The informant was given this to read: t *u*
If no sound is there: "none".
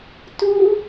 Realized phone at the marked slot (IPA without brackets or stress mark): u